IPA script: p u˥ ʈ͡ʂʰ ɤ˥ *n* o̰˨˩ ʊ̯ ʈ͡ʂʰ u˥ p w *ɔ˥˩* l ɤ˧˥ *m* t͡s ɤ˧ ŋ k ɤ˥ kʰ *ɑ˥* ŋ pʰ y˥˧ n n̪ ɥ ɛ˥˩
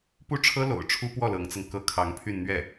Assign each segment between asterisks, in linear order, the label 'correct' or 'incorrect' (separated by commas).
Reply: incorrect, correct, incorrect, incorrect